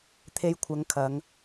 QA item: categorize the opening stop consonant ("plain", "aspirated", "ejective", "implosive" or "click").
aspirated